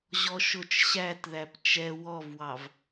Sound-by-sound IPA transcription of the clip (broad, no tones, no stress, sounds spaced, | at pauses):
ʑ ɔ ʃ ʊ t͡ʃ ɕ æ t ð æ p t͡ʃ ɛ w ɔ v w ɑ v